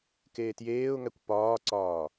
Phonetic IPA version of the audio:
keːtjeːʊ̯ŋækʷ pɒːǀɒː

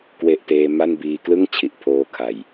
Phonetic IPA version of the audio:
kwe˥˩ʔteː˦˥ ma˥˩nbiː˧ klɯ˥˩ŋ t͡ɕʰi˨˩ʔpʰoː˧ kʰa˨˩j

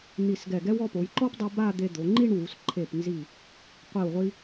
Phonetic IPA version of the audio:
n̪i˧˩sɡɛ˧˩ɡɛ˥w ɔ˧po˩˧j ǃɔ˥pdˤu˧ ba˥˧d̪e˧d̪o˩˧ ŋ͡ǃi˥˧ɳwu˩˧s ǃʰe˧˩pnzi˧˩ | qʷi˧˩wʁʷi˧

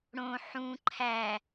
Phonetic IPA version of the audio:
ɽõ ħũ ǃʰæ

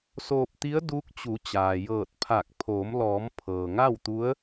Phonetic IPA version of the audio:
soː˧p̚t̪i˧˥ə̯ duː˧˥k̚t͡ɕu˩˧t͡ɕaː˩ jɤː˧˩t̚pʰa˧˩k̚ pʰoː˩˧mlɔː˩˧m pʰɤː˩ŋa˥˨wt̪u˧˥ə̯

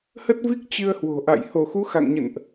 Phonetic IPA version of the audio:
hə˦˥t̚vi˦˥k̚ t͡ɕɨ˧ə̯hwo̤˨˩ʔa̰˧˨j ho˧˩xu˨˦xa̰˧˨ŋɲə̰˧˨nʔ

